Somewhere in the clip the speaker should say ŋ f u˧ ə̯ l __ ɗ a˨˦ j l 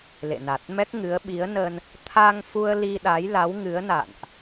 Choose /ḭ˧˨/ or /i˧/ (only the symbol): i˧